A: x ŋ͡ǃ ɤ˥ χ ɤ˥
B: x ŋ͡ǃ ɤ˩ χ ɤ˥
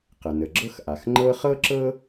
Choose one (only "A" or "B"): A